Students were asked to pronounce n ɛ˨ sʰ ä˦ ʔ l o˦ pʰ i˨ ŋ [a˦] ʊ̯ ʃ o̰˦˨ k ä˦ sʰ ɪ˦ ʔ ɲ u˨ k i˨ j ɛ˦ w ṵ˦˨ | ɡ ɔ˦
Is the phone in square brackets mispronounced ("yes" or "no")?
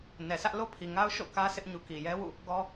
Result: no